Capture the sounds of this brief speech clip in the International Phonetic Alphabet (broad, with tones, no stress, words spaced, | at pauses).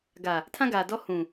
ɡa˨ | tʰã˦ɡaː˨dɔ˦ hũ˨